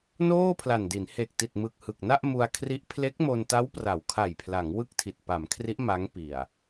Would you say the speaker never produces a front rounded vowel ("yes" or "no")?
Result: yes